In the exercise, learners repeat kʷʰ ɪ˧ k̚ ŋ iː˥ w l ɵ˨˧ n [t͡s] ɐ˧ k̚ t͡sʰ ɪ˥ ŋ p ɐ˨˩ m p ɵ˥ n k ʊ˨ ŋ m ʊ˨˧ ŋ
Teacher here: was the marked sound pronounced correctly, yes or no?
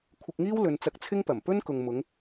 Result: yes